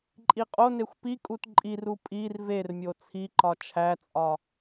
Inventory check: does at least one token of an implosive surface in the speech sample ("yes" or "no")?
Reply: no